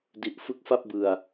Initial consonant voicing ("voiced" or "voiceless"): voiced